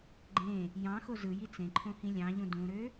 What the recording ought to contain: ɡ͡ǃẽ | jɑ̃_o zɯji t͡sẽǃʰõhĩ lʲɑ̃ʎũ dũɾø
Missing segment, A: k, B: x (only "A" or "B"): B